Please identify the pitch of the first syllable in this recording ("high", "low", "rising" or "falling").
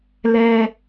high